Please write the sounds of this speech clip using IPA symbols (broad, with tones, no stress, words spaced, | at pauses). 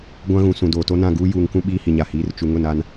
ɡʷã˦ɣũ˨ sũ˨doː˨to˦nã˦˨ ɡuː˦ juː˨ŋkũ˦ ɓiː˦hi˨ɲa˨hiː˨˦r t͡ʃu˨ŋʊ˦˨na˦n